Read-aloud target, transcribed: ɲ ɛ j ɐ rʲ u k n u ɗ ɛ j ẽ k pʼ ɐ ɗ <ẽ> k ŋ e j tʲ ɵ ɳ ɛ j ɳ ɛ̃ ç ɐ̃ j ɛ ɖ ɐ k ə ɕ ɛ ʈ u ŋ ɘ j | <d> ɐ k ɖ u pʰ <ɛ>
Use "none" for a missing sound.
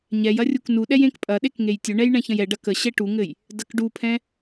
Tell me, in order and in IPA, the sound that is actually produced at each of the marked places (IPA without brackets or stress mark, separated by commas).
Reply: e, d, ɛ̃